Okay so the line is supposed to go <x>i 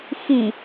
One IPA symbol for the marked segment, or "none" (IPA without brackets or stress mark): x